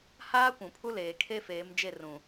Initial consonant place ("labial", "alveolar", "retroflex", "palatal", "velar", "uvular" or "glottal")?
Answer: glottal